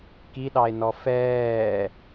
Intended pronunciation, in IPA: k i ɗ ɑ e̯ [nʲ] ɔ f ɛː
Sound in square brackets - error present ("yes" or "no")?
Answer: yes